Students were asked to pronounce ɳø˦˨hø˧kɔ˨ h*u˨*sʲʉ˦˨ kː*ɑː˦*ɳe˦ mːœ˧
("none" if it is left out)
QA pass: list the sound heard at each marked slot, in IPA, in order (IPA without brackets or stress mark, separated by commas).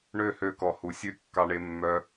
u˨, ɑ˦